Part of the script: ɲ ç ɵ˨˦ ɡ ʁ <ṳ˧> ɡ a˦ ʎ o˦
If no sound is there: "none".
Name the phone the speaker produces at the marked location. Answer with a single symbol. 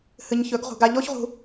ṳ˧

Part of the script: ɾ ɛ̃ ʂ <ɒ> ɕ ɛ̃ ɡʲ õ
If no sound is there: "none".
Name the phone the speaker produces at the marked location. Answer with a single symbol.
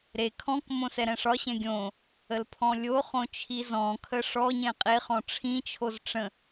ɒ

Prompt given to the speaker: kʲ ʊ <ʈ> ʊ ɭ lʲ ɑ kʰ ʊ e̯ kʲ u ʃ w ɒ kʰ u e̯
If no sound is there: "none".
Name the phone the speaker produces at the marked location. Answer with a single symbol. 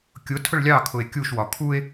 tʰ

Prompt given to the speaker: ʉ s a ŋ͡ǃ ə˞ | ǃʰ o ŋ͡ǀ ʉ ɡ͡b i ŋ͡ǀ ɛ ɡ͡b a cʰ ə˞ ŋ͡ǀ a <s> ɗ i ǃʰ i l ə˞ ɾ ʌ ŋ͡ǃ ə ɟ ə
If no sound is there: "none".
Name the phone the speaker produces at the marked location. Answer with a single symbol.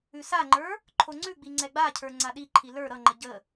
none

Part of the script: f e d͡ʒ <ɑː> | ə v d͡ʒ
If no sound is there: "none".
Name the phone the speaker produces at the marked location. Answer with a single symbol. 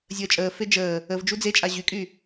əː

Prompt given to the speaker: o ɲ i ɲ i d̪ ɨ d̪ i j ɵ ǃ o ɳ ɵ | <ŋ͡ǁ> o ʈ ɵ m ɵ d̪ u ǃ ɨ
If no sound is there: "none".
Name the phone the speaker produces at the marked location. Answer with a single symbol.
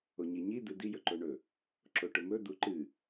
ǁ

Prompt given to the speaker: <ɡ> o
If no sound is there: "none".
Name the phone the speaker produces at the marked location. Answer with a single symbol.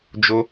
d͡ʒ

